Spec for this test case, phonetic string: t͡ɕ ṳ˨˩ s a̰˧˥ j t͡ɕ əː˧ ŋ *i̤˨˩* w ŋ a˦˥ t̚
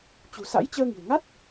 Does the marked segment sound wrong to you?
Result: no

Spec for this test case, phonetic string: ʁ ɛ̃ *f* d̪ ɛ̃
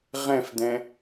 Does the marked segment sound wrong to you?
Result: no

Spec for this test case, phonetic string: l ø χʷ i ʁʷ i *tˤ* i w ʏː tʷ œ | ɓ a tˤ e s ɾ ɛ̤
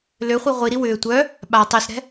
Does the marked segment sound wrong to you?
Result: yes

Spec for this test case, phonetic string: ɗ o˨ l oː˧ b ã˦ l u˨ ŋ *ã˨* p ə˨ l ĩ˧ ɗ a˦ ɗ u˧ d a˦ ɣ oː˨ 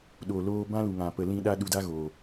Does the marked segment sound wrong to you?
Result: no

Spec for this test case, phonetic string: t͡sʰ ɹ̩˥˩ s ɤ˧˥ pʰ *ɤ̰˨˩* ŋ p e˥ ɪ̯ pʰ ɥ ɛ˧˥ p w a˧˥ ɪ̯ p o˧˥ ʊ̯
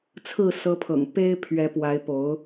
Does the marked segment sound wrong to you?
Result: no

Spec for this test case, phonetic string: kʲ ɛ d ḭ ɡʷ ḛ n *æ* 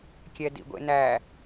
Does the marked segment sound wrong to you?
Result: no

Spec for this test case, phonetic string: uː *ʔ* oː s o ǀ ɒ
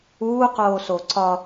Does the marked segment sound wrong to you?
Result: yes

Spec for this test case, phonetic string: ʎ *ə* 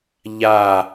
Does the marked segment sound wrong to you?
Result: yes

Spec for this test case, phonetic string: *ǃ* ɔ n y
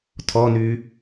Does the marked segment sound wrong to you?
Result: yes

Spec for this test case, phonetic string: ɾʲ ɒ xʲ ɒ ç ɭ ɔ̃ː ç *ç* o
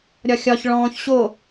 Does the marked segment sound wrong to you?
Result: yes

